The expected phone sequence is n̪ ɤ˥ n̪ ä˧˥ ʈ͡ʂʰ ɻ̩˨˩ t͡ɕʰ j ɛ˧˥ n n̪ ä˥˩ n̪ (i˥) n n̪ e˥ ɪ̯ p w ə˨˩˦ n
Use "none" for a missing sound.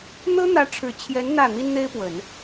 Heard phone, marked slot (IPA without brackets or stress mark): i˥